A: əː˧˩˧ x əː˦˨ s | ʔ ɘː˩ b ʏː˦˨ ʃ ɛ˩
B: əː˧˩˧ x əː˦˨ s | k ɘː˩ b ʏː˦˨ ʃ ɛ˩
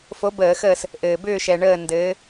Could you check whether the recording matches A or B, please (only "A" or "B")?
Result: A